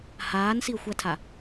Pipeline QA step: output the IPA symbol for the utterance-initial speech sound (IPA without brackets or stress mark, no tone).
h